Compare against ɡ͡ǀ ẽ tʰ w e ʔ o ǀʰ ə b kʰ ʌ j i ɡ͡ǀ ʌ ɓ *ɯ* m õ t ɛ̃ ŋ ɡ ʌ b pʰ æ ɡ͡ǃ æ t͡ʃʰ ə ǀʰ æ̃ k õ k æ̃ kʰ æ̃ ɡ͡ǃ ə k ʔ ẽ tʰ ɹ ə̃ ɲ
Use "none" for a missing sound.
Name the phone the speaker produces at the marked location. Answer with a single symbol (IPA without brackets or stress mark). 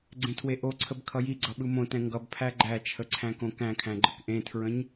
ɯ